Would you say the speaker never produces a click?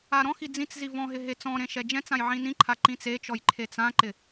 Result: no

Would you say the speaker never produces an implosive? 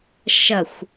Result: yes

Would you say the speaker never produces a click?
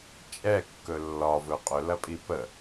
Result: yes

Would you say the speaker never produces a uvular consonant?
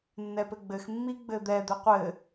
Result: no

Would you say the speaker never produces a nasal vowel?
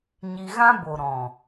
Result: no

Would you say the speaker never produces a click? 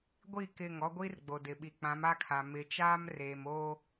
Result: yes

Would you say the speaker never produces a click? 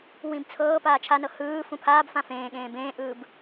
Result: yes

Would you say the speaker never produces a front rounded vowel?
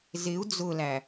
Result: yes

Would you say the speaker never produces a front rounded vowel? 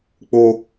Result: yes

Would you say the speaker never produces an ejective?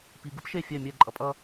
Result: no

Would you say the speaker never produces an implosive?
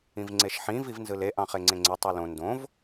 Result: yes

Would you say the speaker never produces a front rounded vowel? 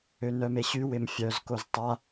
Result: no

